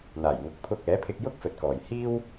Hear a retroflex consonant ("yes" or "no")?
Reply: no